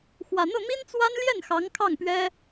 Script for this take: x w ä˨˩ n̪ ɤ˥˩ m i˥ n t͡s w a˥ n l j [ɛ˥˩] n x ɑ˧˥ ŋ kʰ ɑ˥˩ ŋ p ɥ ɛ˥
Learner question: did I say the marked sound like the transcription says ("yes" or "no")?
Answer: yes